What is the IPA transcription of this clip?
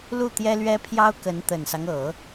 l u˥˩ t̪ j ɛ˥ l ɥ ɛ˥ pʰ j ɑ˥ ʊ̯ k ə˧˥ n t̪ ə˨˩ n s ɑ˦ ŋ ɤ˨˩˦

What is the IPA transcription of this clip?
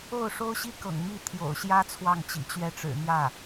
o˥˩ ʊ̯ ʂ o˥ ʊ̯ ɕ i˥ k ɤ̰˨˩ ŋ m i˥˩ t̪ʰ j o̰˨˩ ʊ̯ ɕ j ä˥ t͡sʰ w ɑ˥˩ ŋ t͡ɕ ḭ˨˩ t͡ɕ ɥ ɛ˥˩ ʈ͡ʂ ɻ̩˨˩ n̪ j ä˥˩

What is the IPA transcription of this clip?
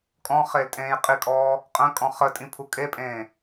kʼ ɔ̃ χ e l tʼ ẽː j qʼ i kʼ ɔː | qʼ ə̃ kʼ ɔ̃ χ ə tʼ ĩ pʰ u kʼ e pʼ ẽː

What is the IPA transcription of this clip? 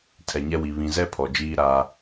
tʰ ɛ˨ ɲ ɛ˦ w i˨ β ĩ˨ z ɛ˦ pʰ ɔ˨ d͡ʒ iː˦ ɾ aː˦

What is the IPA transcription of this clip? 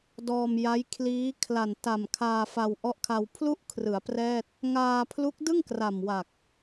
d ɔː˧ m j a˦˥ j kʰ l iː˦˥ kʰ l a˨˩ n t a˨˩ m kʰ aː˧ f a˧ w ʔ ɔ˦˥ ʔ kʰ a˧ w pʰ l u˥˩ ʔ kʰ r ɯ˩˦ a̯ p r ɛː˥˩ t̚ | ŋ aː˧ pʰ l u˦˥ k̚ d ɯ˥˩ ŋ k r a˨˩ m w a˨˩ k̚

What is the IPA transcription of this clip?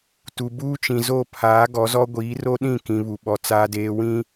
t u˨ b uː˦ t͡ʃ ĩ˨ z o˦˨ pʰ aː˨˦ ɡ ɔ˨˦ z ɔ˦ ɡʷ iː˨˦ r o˦ ɗ ĩ˦˨ k ĩ˨ β u˨ ɓ ɔ˨ t͡s aː˨ d eː˨ w ĩ˦

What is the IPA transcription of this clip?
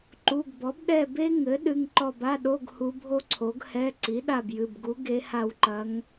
ǃ u˩˧˩ ɡ b ɔ˩˥ b ɗ ɛ˦˨ b e˥ ŋ ɘ˩˥ ɗ ɨ˩˧˩ ŋ ǃ ɔ˦˨ b a˧˥˧ ɗ o˧˥˧ ɡ h u˧˥ bʱ o˥ ǀʰ o˩˥ ɡ h ɛ˧˥˧ ǀ i˩˥ ɗ a˦˨ b j ɨ˩˧˩ b ɡ u˧˥ ɡ e˧˥ h a˦˨ w ǃ ɐ˧˥ ŋ

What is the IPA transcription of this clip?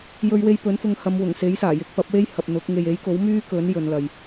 j ɵ˧ ɥ w e˧ j p ɵ˨˥ n f ʊ˧ ŋ h ɐ˨˧ m w ʊ˨˩ ŋ s e˨˥ j s aː˨˩ j ɪ˨˥ k̚ p ɐ˨˥ p̚ w e˥ j h ɐ˨ p̚ n̪ ʊ˨˥ k̚ ŋ e˨ j e˨˥ j k o˨˥ w m yː˥ k ɵ˨˥ n j ɵ˨˧ n l ɐ˨ j

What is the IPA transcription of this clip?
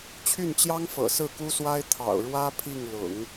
t͡ɕʰ y˥˩ n t͡ɕ j ɑ˥ ŋ f ɤ̰˨˩ s ɹ̩˥˩ k u˥ s w a˥ ɪ̯ t̪ʰ ɑ̰˨˩ ʊ̯ ɻ w ä˥ pʰ i˥˩ ŋ l ʊ̰˨˩˦ ŋ

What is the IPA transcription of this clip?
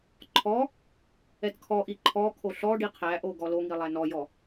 ǃʰ ɔ | ɛ t kʰ ɔ ʔ i ǃʰ ɔ kʰ o ɬ ɔ ɖ i qʰ æ ʔ o ɡ ɔ l o ŋ i lˠ æ n ɔ j ɔ

